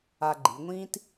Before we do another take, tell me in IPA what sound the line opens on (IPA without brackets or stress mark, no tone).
a